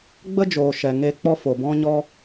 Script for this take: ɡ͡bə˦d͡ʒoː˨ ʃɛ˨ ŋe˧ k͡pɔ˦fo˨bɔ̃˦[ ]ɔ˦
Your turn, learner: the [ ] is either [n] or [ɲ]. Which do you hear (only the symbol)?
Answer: ɲ